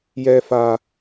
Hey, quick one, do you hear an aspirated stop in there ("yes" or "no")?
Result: no